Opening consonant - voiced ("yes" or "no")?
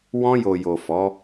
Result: yes